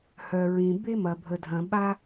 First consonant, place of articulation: glottal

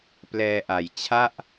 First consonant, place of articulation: labial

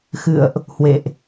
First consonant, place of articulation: velar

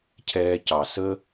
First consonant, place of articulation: palatal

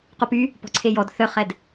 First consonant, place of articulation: uvular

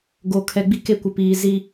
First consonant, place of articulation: velar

